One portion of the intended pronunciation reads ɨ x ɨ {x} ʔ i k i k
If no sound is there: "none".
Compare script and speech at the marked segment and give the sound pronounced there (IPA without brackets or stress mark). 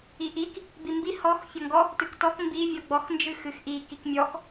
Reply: x